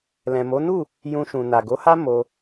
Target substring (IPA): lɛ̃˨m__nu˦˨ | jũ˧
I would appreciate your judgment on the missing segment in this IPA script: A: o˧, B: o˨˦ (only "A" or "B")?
B